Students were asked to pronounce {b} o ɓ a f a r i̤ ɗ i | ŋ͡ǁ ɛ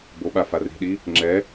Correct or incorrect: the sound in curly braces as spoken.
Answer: correct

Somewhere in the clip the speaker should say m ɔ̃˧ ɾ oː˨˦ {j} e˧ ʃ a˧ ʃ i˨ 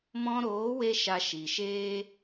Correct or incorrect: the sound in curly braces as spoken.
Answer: incorrect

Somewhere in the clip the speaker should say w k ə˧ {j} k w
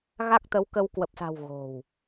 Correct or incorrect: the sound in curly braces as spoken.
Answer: incorrect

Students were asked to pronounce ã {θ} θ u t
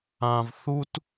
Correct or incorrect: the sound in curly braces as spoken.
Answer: incorrect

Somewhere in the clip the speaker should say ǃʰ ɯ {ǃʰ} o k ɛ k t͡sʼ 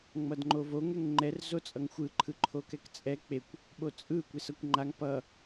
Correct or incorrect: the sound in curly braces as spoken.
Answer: correct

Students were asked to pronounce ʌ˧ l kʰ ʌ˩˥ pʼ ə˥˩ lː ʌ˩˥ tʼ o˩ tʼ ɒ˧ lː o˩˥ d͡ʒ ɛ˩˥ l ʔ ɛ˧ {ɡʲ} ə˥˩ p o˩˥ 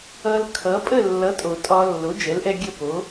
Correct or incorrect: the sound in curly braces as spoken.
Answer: correct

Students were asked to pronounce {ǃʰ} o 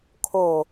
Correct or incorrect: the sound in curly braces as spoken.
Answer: incorrect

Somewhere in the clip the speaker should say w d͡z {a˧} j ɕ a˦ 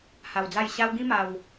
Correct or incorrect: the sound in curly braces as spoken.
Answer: incorrect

